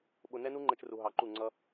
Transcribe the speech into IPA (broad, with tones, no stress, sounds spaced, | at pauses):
ɓ ʊ˦ n ɛ˦ n u˦ ŋ͡ǃ ɛ˦ t͡ʃ r u˧ ɦ ɑ˧ ǃ u˦˨ ŋ͡ǀ ʌ˦